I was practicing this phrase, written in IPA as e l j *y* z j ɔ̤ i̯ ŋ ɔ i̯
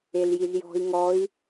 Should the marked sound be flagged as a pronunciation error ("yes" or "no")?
yes